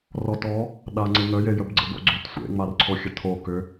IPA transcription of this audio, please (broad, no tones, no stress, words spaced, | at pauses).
rɔtɔ | ɗaŋ͡ǀɪŋəje jəbɡ͡ǀə̰bo̰ɡ͡ǀʏt sʷḛŋ͡marǀʰo xʲətʰo kʏ